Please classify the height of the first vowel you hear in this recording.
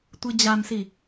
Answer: high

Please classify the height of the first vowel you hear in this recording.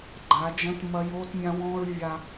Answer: low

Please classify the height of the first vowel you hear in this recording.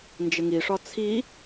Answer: high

